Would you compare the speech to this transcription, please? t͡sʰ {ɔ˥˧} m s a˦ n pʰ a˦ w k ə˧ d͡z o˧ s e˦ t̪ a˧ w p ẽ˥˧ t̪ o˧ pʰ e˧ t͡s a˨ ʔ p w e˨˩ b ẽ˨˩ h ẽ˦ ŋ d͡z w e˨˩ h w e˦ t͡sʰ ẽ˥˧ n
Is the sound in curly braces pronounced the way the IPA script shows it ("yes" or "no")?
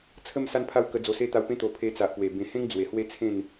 no